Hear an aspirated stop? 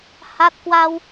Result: no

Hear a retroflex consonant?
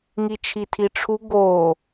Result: yes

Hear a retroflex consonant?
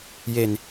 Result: no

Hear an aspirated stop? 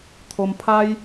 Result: yes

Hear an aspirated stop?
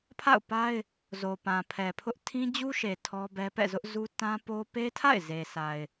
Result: yes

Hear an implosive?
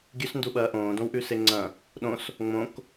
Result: yes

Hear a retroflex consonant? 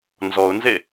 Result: no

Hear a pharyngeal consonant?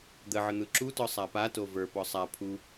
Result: yes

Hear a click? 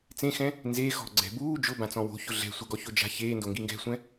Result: yes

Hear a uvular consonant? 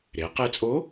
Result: yes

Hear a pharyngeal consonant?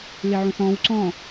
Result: yes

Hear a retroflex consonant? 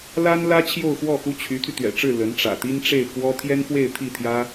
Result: yes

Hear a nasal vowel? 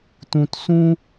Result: yes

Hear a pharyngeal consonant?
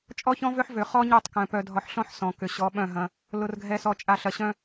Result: yes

